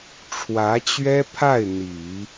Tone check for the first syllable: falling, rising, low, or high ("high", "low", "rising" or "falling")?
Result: rising